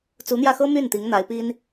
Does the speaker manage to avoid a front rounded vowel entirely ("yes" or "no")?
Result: no